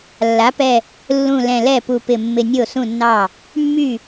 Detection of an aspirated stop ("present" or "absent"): absent